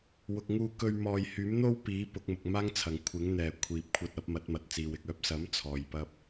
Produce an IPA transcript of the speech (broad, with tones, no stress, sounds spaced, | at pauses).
w ʊ˨ k̚ ŋ uː˧ k ɵ˧ ɥ m ɔː˨ j h yː˨˥ m n̪ o˥ w p iː˨˥ p ʊ˨˥ k̚ m ʊ˨ k̚ m aː˥ ŋ t͡sʰ ɐ˨ ŋ kʷʰ ɪ˨˥ ŋ n̪ ɛː˨ kʷʰ iː˨ p̚ kʷʰ ɐ˧ t̚ ɐ˨˥ p̚ m ɐ˨˥ t̚ m ɐ˨ t̚ t͡s iː˨ w ɪ˨ k̚ œː˥ p̚ s ɐ˨˥ m t͡sʰ ɔː˨ j p ɐ˥ p̚